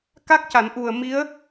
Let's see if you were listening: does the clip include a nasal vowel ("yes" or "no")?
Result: no